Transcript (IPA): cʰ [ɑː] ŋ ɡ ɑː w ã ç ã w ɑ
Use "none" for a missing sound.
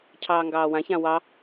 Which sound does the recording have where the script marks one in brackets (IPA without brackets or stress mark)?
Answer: ɑː